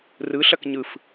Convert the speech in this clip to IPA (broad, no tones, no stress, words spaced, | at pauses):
rɯɬɐk ɲɯf